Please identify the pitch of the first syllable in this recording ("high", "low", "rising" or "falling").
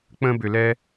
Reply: high